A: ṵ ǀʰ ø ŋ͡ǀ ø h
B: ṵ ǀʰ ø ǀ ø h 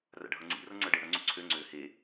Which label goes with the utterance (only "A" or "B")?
A